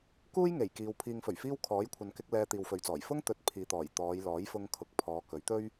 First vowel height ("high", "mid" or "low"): high